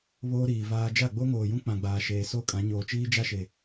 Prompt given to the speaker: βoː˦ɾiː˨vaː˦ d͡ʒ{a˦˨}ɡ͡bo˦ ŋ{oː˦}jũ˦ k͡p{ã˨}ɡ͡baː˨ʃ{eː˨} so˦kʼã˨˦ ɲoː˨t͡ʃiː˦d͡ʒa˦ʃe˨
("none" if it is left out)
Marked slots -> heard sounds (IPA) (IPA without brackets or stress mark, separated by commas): a˦˨, oː˨, ã˨, eː˨